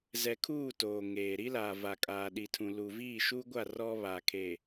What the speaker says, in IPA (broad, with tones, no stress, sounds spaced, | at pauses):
z ɛ˨ kʰ uː˦˨ t oː˨ ŋ eː˨ ɾ i˦ l a˨ v a˨ kʼ aː˨ ɗ i˨ tʰ ũ˨ l u˨ v iː˦˨ ʃ uː˦ ɡʷ a˦˨ r ɔ˦ β a˨ kʰ e˨